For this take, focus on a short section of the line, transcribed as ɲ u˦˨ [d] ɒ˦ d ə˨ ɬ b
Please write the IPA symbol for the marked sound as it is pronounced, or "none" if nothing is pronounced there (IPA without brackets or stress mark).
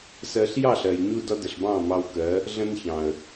d